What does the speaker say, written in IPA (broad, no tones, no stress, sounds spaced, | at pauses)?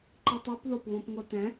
ǃ i tˤ u p ð o p β õ p ŋ o t ɛ̃